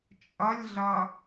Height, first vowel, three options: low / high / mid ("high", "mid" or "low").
mid